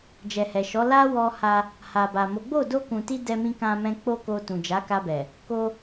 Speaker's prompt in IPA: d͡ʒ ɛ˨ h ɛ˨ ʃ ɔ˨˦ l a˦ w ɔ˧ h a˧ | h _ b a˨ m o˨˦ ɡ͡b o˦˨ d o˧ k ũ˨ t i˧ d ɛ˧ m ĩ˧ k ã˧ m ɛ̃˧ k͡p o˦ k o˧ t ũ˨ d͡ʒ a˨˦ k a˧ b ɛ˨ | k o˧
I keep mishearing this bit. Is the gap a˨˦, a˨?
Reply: a˨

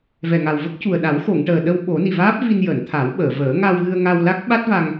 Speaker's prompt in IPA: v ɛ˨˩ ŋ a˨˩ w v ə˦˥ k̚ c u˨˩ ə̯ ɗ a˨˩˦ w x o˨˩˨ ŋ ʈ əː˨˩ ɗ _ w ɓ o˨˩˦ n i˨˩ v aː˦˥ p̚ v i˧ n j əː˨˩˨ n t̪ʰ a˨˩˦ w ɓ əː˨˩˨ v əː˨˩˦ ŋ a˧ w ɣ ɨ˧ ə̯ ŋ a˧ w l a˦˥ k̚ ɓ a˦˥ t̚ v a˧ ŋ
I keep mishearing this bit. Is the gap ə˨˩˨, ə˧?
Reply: ə˧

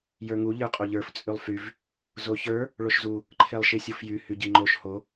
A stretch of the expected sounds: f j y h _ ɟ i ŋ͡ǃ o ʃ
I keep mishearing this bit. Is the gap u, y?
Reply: y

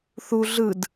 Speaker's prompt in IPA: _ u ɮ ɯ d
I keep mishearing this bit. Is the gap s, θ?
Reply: θ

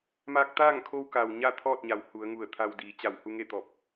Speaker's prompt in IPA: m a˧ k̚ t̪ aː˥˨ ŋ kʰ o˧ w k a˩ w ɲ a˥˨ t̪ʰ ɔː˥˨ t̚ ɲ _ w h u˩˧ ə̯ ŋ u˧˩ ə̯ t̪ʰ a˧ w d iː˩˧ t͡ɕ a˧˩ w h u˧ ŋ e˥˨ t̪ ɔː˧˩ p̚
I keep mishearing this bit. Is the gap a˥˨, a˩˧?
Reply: a˩˧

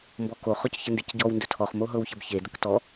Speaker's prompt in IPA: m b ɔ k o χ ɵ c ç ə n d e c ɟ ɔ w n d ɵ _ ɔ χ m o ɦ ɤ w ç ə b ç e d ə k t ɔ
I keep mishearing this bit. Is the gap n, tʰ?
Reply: tʰ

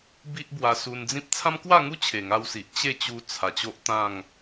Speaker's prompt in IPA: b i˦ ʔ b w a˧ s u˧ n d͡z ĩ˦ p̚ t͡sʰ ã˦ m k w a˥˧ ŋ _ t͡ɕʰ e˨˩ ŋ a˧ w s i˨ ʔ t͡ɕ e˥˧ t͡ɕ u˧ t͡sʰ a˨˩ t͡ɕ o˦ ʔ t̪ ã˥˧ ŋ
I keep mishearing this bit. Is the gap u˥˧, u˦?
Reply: u˦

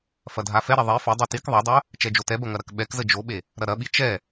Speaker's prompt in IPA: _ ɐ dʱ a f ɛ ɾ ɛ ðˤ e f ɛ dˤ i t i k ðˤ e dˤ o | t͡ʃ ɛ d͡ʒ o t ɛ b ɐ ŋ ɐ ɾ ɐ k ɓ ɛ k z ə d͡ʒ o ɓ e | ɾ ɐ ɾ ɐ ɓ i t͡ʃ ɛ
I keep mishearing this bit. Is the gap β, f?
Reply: f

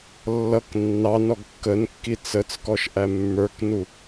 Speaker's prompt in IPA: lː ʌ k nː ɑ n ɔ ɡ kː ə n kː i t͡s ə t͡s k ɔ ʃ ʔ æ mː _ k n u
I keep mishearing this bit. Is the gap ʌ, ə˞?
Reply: ə˞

